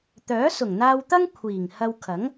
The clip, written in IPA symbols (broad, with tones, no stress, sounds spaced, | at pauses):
t̪ œː˨˥ s ʊ˨˩ ŋ n̪ aː˧ w t̪ ɐ˥ ŋ kʷʰ iː˨˩ ŋ h ɐ˧ w kʰ ɐ˨˥ ŋ